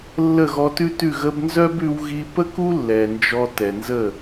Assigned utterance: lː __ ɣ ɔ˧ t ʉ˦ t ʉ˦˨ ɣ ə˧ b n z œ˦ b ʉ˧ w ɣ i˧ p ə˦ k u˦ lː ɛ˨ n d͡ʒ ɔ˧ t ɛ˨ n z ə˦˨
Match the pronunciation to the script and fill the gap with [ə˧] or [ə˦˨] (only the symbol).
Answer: ə˦˨